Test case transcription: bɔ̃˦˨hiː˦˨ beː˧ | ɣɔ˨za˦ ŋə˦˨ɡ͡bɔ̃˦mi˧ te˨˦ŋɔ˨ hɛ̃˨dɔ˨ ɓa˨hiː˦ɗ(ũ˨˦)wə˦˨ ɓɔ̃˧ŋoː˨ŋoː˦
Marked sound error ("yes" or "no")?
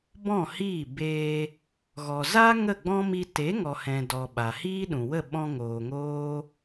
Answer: yes